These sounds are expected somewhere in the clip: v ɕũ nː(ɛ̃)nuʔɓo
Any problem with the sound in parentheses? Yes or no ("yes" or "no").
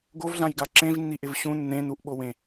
yes